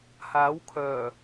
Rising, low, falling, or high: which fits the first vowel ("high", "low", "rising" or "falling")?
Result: rising